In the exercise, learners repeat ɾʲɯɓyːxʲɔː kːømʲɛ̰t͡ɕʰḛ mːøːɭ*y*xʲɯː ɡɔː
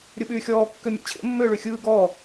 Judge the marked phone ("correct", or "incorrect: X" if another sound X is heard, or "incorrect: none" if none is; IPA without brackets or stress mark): correct